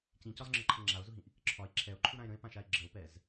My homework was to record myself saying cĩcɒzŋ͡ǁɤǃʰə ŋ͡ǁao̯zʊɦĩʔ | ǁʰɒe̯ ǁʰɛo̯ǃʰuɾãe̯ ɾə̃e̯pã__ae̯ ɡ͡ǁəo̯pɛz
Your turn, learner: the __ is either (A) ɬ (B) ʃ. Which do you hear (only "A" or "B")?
B